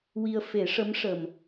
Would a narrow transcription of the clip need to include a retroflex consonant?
yes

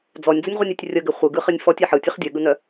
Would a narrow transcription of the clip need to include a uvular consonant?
yes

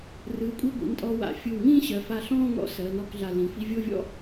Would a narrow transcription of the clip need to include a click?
no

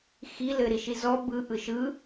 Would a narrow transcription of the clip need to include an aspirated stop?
no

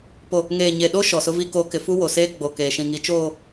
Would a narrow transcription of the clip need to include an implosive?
yes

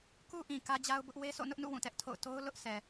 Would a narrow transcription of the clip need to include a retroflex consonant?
no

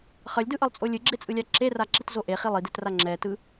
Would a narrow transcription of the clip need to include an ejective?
yes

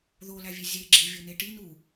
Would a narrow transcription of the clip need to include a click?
yes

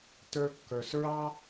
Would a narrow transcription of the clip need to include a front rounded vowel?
no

